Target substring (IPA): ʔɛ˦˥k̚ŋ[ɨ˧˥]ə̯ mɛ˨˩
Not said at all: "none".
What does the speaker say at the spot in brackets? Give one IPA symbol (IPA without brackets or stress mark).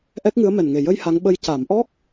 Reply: ɨ˧˥